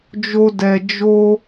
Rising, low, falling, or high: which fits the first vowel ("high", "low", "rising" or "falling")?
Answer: high